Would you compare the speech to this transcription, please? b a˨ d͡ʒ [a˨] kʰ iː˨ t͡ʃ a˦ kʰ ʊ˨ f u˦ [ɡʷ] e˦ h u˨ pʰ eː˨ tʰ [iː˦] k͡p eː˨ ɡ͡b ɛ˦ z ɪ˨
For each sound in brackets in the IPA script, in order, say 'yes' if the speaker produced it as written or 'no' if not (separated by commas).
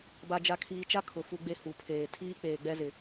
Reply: yes, no, yes